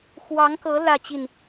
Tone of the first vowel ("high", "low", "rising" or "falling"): rising